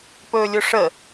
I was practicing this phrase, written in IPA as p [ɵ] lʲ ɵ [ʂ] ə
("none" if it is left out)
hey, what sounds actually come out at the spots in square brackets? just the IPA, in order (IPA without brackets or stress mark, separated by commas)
ɵː, ʂ